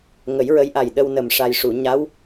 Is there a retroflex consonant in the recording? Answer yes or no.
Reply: yes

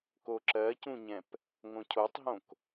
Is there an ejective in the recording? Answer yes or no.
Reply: no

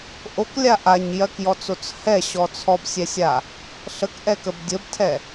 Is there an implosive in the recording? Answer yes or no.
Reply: no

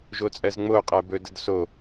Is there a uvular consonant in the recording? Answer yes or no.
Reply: yes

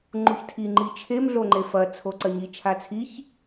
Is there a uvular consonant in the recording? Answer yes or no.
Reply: no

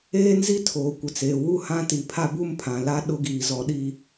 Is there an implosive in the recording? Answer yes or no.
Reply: yes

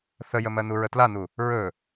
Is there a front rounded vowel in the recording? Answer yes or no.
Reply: no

